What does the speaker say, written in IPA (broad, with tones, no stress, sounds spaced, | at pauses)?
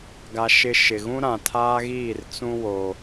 ɡ a˨ ʃ ɪ˨ ʃ ɪ˨ ɣ ũ˦ ɾ ã˨ tʰ aː˦ ɣ iː˦˨ r t͡s ũ˦ w o˦